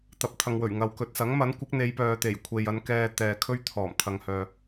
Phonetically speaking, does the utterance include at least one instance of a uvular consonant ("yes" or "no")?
no